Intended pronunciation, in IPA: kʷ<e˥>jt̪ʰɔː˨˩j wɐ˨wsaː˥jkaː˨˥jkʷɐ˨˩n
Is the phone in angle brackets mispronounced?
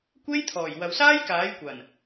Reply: no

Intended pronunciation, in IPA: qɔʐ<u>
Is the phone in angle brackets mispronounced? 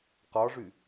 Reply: yes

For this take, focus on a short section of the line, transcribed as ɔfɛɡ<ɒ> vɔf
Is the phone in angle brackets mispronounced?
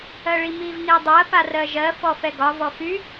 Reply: no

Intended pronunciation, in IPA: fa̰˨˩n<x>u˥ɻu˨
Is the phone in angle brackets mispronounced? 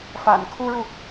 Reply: yes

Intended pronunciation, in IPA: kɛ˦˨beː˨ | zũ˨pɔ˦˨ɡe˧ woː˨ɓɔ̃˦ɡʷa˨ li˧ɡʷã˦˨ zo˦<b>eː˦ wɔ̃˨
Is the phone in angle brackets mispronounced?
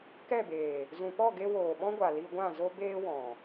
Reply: no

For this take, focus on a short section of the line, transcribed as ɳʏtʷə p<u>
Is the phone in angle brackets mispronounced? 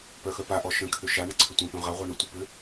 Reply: yes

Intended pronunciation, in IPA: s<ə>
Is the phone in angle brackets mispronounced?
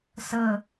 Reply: no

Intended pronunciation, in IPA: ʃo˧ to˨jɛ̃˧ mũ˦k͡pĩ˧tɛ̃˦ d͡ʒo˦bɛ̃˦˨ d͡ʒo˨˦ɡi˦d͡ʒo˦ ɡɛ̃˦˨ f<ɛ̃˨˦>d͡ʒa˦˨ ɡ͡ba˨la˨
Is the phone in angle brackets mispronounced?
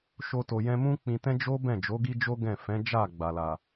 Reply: no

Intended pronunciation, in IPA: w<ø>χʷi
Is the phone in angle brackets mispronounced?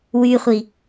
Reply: yes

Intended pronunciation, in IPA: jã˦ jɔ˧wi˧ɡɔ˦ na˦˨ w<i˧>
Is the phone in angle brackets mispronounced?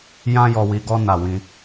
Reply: yes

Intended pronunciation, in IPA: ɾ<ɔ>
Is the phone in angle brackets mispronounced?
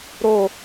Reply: yes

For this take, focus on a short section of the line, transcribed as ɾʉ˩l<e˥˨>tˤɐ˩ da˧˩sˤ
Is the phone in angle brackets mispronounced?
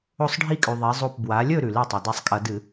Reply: no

